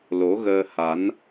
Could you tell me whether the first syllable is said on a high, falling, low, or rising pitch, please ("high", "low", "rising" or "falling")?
rising